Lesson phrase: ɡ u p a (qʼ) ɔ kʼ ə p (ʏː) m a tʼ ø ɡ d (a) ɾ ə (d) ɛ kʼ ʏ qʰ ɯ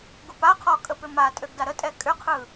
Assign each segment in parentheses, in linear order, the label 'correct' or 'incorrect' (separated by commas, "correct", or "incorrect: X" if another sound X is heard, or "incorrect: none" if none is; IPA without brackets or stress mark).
incorrect: qʰ, incorrect: ʏ, correct, incorrect: tʼ